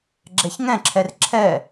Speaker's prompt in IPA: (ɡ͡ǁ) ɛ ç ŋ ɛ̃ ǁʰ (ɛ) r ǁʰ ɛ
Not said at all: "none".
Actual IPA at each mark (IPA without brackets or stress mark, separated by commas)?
ɡ͡ǁ, ɛ